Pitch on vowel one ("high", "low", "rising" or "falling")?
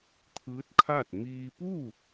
rising